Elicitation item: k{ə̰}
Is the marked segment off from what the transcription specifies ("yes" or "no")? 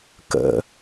no